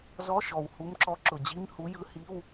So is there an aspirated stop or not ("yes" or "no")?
no